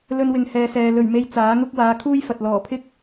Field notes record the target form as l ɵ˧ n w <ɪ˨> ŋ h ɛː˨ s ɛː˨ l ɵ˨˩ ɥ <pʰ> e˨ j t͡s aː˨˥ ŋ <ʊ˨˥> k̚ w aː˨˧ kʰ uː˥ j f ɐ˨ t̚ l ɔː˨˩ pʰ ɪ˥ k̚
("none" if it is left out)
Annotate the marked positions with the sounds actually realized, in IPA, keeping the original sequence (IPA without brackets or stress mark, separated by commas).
ɪ˨, m, ʊ˥